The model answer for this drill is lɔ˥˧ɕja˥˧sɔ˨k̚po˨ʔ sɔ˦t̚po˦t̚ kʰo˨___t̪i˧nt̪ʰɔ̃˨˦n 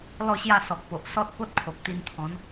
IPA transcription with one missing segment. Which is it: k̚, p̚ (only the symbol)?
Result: k̚